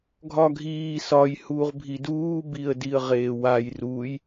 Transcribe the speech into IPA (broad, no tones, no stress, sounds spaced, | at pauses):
ɡʱ ɒ ɡʱ iː s ɒ j h uː ʁ bʱ i d uː b i ə̯ d i ə̯ ʁ eː w a j r u j